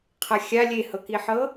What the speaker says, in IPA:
qʰ a xʲ a lʲ e h ɤ k i ħ ɤ

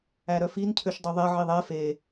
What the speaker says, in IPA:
æ ɾ œ f i n cʰ ø ʃ dˤ u ðˤ ɛ ʕ i ðˤ ɛ f e

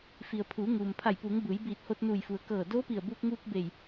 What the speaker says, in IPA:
f i˩ ə̯ pʰ uː˩˧ ŋ uː˩ m pʰ a˧˩ j p uː˩˧ ŋ b ɯː˩˧ j b iː˧˩ t̚ h o˧ t̚ n uː˧˩ j f u˩ ə̯ k ɤː˧˩ d oː˧˥ p i˧˩ ə̯ b uː˧ k̚ ŋ uː˧ k̚ b e˧˩ j

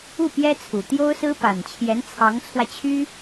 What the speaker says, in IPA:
u˥˩ p j ɛ˥ t͡sʰ u˨˩ t̪ j o˥ ʊ̯ s ɹ̩˥ p a˨˩ n t͡ɕʰ j ɛ˧˥ n t͡sʰ ɑ˧˥ ŋ t͡sʰ w ä˧ t͡ɕʰ y˥

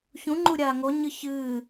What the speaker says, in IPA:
ç ũ ŋ͡ǃ u ɾʲ aː ŋ o ɲ ɨ ç ɨː

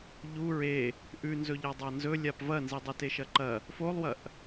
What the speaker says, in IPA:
ʎ u ɹ e | ʔ ʉ n z ɵ ʎ a dˤ a n z ɵ lʲ a p v ɐ n z i dˤ e t e ʃ ɐ ǃ ɐ | f o lˠ w ɐ ʔ

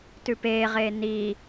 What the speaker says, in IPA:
t ʉ p eː ʁ eː n iː

